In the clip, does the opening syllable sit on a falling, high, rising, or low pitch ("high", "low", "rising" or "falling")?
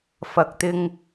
low